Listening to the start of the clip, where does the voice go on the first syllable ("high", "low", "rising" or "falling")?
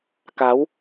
rising